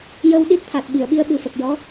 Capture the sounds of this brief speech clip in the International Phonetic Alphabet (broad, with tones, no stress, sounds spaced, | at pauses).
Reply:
j ə˧ w ɗ i˦˥ t̚ t̪ʰ a˨˩ t̚ ɓ i˨˩˨ ə̯ ɓ i˧ ə̯ ɓ ɨ˨˩ f ə˨˩ k̚ j ɔ˧˥